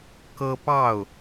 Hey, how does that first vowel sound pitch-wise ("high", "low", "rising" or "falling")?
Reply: high